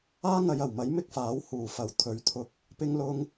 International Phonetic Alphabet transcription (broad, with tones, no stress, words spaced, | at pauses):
aː˥ŋɐ˨˧j ɐ˨˩wmɐ˨˥j mɪ˥k̚faː˨˥w huː˨˩fɐ˨˩w t̪ʰɵ˨˥ɥt̪ʰʊ˧k̚ | pɪ˥ŋlʊ˥ŋ